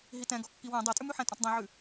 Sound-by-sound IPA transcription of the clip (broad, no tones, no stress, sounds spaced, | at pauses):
ɦ i t ɛ̃ ɡ ɔ kː i w ɛ̃ dˤ ɛ tʼ ʉ m ʉ ħ ɛ̃ tʼ ɔ̃ t dˤ ɛ̃ ʕ ʉ